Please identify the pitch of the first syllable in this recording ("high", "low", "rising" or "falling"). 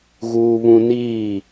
high